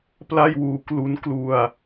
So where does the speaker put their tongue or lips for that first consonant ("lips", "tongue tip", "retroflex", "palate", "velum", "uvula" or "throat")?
lips